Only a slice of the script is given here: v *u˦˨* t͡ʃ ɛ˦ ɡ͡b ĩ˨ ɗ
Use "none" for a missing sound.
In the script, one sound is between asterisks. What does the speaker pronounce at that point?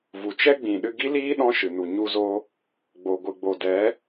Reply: u˨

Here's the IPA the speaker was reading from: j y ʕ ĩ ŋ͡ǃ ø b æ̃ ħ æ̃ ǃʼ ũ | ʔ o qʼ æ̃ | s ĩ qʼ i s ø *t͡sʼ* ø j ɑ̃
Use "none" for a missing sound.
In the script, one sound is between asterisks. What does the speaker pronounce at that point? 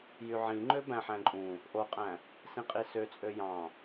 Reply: t͡sʼ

